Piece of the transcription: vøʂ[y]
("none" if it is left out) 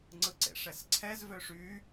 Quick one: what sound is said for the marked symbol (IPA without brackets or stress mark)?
y